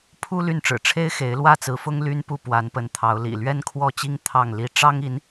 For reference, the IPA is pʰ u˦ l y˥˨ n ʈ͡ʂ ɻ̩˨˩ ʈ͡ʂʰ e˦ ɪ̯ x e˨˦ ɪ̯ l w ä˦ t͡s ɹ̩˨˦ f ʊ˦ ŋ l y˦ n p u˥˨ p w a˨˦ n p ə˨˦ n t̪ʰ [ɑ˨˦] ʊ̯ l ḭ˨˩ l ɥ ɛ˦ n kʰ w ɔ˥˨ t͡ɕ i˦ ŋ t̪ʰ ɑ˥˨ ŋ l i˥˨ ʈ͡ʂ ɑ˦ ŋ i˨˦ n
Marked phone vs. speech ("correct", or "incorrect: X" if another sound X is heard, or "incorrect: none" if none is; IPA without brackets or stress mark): correct